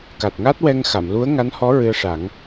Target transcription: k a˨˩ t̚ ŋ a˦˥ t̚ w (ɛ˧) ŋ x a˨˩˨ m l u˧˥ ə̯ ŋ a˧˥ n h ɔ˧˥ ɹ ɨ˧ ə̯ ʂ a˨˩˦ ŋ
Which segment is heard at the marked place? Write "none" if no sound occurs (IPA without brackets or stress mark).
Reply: ɛ˧